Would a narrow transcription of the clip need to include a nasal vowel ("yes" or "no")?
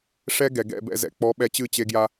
no